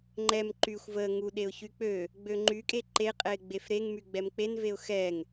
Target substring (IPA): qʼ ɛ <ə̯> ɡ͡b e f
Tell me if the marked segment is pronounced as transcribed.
no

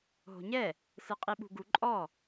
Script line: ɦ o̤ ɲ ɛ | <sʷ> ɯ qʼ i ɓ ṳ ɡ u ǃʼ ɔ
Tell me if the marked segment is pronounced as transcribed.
no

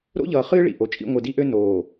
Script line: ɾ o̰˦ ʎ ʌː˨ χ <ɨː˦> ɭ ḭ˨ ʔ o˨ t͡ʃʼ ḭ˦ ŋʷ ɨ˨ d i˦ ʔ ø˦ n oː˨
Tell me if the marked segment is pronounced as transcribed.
yes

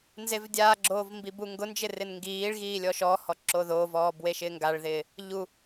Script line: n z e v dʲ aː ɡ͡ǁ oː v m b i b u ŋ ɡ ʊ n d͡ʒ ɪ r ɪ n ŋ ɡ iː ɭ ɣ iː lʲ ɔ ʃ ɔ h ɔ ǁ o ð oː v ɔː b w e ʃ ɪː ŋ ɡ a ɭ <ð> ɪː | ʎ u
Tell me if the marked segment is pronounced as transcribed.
yes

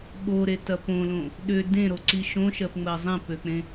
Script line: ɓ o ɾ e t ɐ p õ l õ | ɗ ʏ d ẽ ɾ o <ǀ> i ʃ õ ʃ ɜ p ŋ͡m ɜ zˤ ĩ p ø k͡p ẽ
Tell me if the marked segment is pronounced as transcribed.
yes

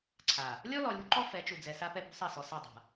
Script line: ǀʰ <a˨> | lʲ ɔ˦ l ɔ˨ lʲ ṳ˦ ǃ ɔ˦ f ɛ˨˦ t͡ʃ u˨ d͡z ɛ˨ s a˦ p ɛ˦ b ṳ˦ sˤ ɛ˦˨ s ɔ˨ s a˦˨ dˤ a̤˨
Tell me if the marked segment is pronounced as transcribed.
yes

